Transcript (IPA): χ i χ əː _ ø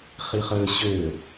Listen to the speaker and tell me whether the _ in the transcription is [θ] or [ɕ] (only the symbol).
ɕ